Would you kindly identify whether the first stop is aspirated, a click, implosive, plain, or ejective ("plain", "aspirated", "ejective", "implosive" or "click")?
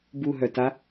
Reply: plain